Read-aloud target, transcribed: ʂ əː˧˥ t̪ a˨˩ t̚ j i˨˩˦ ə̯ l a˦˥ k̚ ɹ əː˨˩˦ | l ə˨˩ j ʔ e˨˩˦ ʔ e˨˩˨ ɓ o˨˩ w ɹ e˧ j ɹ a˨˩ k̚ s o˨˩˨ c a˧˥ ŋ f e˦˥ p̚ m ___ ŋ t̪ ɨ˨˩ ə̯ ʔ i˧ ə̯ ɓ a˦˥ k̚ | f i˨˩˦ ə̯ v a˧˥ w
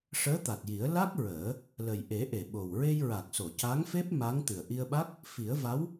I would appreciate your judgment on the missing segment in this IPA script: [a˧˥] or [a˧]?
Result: a˧˥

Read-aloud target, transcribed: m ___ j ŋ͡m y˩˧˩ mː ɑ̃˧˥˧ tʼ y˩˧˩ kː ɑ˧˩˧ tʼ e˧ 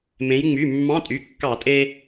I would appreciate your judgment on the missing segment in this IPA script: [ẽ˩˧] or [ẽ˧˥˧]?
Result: ẽ˩˧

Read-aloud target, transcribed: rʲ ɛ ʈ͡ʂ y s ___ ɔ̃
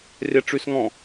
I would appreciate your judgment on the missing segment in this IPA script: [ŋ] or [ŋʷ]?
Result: ŋ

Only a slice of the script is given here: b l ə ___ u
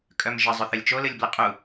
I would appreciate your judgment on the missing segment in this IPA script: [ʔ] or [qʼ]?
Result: qʼ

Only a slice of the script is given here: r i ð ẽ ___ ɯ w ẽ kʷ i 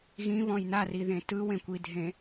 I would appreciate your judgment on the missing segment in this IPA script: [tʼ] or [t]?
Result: t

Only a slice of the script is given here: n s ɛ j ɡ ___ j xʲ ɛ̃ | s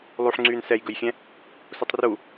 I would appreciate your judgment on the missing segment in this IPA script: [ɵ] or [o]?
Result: ɵ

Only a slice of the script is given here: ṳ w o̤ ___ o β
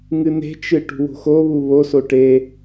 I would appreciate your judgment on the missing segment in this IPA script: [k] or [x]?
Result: x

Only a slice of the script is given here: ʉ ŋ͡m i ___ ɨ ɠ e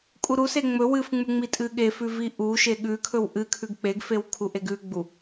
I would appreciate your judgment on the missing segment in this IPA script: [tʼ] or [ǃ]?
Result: tʼ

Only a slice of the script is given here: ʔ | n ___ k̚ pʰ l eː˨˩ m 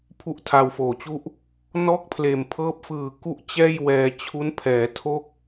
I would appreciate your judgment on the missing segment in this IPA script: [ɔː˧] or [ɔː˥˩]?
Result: ɔː˥˩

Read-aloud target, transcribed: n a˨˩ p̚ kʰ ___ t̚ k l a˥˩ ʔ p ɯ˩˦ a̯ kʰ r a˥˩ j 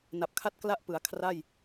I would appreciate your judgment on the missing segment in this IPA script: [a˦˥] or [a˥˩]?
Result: a˥˩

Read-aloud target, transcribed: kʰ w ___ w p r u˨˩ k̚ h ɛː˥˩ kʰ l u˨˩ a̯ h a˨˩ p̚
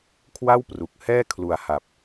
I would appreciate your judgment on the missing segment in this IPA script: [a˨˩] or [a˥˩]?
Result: a˥˩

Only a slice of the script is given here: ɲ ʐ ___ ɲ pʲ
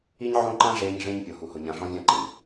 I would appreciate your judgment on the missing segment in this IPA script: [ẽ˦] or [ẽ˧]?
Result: ẽ˦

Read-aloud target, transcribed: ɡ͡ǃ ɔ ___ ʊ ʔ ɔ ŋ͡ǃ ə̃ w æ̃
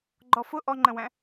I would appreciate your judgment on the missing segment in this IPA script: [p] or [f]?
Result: f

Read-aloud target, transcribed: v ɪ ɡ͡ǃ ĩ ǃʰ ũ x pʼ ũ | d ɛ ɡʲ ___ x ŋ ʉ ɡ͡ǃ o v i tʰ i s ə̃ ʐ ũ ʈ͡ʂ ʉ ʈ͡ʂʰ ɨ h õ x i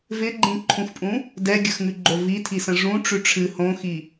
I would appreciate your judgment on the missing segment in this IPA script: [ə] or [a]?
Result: ə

